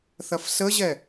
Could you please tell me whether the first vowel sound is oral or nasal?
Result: oral